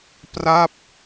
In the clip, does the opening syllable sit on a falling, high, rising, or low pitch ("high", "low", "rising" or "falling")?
falling